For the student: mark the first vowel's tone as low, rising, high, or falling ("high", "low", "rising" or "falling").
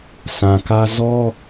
low